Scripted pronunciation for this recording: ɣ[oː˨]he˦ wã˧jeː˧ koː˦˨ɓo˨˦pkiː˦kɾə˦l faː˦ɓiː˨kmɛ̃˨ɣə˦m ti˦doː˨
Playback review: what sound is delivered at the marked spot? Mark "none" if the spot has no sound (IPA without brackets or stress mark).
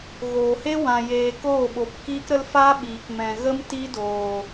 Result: oː˨